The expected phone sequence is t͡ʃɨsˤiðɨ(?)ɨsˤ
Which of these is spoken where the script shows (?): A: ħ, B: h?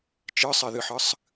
A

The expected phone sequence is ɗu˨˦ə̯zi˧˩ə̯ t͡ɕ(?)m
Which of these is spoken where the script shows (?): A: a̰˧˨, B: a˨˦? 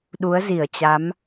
B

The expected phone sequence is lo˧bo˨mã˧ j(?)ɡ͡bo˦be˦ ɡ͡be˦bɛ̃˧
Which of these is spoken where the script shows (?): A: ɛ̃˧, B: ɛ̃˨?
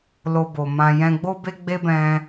A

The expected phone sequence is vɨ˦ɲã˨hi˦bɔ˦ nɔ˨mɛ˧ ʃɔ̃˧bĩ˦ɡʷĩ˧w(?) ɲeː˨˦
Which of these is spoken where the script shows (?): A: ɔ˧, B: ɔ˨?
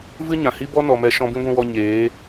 A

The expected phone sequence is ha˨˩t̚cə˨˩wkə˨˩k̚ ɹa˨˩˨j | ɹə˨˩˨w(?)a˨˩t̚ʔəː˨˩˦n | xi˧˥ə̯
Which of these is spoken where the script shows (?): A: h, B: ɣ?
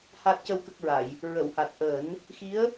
A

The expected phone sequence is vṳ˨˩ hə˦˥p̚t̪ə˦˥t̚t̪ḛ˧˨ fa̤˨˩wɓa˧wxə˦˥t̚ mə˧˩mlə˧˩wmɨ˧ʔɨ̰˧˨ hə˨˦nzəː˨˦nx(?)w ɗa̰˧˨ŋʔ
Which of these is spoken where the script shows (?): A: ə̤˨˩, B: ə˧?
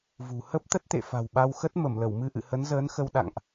B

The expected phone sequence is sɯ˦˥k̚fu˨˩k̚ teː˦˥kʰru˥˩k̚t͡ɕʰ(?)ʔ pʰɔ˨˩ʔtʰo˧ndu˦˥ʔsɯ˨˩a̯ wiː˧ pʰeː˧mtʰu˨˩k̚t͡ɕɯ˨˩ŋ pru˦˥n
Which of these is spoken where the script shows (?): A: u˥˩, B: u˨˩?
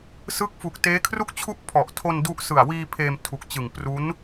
A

